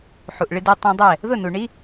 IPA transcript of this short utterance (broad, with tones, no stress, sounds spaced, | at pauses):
ħ u˨ ʔ ɭ ɪ˧ d e˧ tˤ ã˧ dˤ ɛ˦˨ | ð ʊ˦˨ n u˨ ɳ i˦